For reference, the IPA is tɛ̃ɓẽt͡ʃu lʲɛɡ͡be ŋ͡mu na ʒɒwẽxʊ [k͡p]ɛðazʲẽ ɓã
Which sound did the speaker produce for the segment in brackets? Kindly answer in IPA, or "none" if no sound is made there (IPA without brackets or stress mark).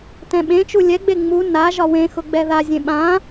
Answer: ɡ͡b